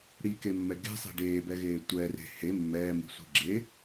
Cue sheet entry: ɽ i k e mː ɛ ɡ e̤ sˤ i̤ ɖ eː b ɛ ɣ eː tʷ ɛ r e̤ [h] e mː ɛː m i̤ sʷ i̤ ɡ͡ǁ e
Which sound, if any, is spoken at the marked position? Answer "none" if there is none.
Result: h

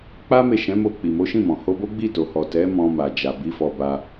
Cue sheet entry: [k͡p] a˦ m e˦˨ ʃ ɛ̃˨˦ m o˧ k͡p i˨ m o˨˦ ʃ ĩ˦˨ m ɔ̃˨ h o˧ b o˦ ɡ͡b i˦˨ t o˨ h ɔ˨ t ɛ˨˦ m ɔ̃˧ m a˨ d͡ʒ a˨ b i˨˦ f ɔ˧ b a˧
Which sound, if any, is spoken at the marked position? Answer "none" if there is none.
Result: k͡p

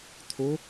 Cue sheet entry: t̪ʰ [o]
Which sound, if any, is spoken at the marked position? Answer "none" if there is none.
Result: o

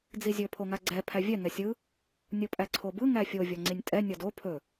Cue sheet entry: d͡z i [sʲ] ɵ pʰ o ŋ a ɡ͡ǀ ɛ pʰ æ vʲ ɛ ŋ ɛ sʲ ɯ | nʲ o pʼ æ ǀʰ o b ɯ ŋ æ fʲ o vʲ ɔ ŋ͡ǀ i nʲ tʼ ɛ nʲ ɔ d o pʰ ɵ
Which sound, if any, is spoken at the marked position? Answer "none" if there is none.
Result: zʲ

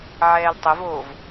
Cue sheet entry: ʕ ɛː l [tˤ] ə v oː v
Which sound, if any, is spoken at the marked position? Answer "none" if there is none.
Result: tˤ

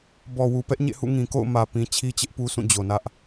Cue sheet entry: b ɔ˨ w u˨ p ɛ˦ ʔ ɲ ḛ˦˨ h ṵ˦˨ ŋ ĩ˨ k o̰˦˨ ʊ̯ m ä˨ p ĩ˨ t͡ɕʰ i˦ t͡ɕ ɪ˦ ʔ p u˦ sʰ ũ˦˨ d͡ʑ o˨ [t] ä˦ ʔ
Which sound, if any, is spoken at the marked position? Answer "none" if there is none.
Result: n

